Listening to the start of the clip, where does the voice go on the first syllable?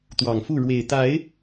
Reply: low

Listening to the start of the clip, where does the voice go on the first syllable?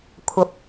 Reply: rising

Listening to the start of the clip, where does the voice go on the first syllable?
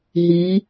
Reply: rising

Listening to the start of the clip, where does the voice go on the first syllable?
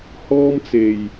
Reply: high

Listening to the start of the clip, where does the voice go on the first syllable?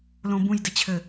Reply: low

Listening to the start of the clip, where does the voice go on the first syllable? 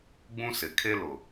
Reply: high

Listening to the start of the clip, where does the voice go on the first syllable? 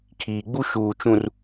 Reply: low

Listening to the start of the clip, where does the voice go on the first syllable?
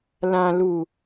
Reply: low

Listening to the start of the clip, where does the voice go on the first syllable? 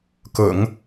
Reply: low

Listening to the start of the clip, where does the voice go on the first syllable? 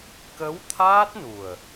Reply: rising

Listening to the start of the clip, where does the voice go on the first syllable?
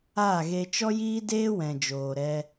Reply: falling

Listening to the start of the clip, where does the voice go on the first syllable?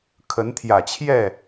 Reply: rising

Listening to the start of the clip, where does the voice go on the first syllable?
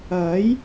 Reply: rising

